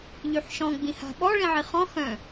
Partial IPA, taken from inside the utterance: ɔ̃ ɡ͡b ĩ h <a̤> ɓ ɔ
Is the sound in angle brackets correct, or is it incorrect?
correct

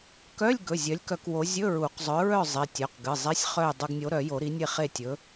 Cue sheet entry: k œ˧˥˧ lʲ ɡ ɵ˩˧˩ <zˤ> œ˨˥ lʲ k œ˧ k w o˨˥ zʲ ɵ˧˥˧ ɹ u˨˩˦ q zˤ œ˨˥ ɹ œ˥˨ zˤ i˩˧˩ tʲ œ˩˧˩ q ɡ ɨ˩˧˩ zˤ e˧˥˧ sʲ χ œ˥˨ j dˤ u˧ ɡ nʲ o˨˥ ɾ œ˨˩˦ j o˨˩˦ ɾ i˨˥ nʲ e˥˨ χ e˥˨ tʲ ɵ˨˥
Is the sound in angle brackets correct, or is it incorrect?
incorrect: zʲ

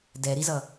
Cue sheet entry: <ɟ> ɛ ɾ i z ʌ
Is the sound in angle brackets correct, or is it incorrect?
incorrect: d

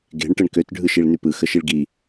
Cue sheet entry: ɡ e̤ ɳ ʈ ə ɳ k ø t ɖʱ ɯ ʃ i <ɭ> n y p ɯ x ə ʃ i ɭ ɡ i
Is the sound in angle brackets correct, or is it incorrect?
correct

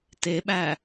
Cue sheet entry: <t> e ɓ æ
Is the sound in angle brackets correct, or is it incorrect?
correct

